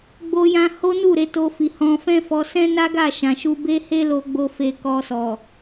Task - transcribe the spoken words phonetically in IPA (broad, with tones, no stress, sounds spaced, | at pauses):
ɡ͡b o˦ j ã˦ h o˦ n u˦˨ ɾ e˨˦ t o˧ f i˨ h ɔ̃˧ f ɛ̃˦ f ɔ˧ s ɛ̃˦ n a˦ ɡ a˦˨ ʃ ã˨ ʃ u˧ b e˦ h e˦ l o˧ ɡ͡b o˧ f e˧ k ɔ˧ s ɔ˨